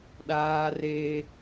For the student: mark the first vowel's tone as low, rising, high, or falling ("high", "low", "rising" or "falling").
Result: high